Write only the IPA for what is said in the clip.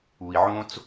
u˨ i̯ ʕ õ˦ t͡s

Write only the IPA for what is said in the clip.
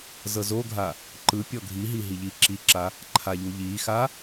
z ɤ z o ɡʱ a | ǃ ɯ pʲ ɔ ɡʱ i ɦ i ɦ i ʎ i ǁ i ǁ a | ǃʰ a ʎ u ʎ i x a

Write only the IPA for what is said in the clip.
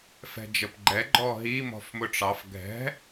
f ɛ̤ d͡ʒ ə p ɡ͡ǃ ɛ ɡ͡ǃ ɔ ɦ i m ɔ̤ f m ʊ ʈ͡ʂ ɑ f ɡʱ ɛ̤

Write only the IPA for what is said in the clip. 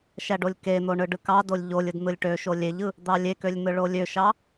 ʃ æ ɖ o lʲ k e n̪ o ɳ ɯ ɖ ɯ k ɑ d o lʲ ʎ o lʲ ɯ d n̪ ɯ lʲ ʈ ø ʃ o lʲ e ʎ ɯ | d̪ ɑ lʲ e k ø lʲ n̪ ɯ ɭ o lʲ ø ʃ ɑ

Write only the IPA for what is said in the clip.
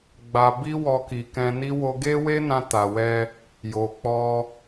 ɡ͡b a˧ b i˦ w ɔ˦ k i˧ k ɛ̃˧ n i˦ w o˧ ɡ e˦ w e˦ n ã˧ t a˨ w ɛ˧ | j o˨ k͡p ɔ˧

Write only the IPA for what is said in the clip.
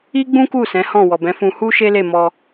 i˦ ɡ͡b ũ˦ k u˦˨ s ɛ̃˨˦ h ɔ̃˦˨ w ɔ˨ b ɛ̃˨˦ f ũ˧ h u˦ ʃ e˦ l e˦˨ m ɔ˧

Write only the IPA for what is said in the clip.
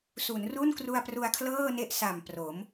s u˩˦ n r u˥˩ n k r u˧ a̯ p r u˧ a̯ kʰ l ɤː˥˩ n e˥˩ ʔ s a˨˩ m p r o˩˦ m

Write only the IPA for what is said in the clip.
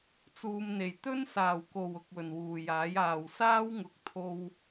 t͡s uː˨ m n̪ e˨˩ j t̪ ɵ˥ n s aː˨˩ w k o˨˩ w ʊ˨ k̚ w ɵ˨˩ n w uː˨˩ j aː˨˥ j aː˨˩ w s aː˥ w ŋ ʊ˨˥ k̚ t̪ʰ o˧ w

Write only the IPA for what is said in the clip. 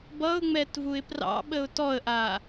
b ʌ ʊ̯ ŋ͡m ɛ t v u ɪ̯ p r ɑ̰ ɓ ə ʊ̯ t ɔ ə̯ ʔ a

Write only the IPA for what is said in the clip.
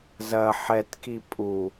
z ɐ ħ ɛ t k i pʼ u

